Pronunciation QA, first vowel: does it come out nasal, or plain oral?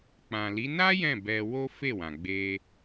nasal